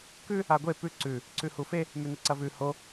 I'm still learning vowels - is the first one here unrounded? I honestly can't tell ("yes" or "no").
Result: no